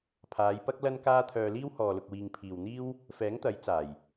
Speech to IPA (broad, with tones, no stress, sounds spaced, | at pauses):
pʰ aː˨˧ j p ɐ˥ k̚ l ɐ˥ n k aː˥ t̪ʰ œː˧ l iː˥ w h ɔː˨ l ʊ˨ k̚ w iː˨ ŋ pʰ iː˨ w n̪ iː˥ w | f ɛː˨˥ ŋ t̪ ɐ˨˥ j t͡s aː˨˩ j